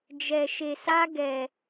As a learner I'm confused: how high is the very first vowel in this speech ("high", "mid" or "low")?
mid